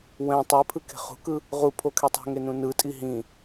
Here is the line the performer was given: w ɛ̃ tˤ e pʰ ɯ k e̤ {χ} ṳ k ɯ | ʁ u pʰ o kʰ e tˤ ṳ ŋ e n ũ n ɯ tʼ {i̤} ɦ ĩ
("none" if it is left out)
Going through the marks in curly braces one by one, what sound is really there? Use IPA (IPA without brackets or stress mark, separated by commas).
χ, i